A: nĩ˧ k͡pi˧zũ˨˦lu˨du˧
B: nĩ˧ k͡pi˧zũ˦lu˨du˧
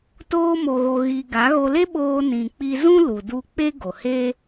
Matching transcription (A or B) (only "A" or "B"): B